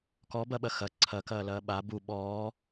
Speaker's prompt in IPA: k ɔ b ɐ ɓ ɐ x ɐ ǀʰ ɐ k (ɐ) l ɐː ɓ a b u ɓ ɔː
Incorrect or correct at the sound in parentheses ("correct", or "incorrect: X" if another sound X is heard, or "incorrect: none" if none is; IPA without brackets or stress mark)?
incorrect: ɐː